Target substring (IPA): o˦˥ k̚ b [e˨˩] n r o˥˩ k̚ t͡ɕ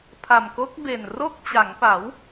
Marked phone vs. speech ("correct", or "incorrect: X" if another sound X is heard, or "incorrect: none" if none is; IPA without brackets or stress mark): correct